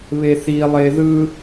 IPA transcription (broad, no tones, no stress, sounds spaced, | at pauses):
β e θ i lˠ e ð ɯ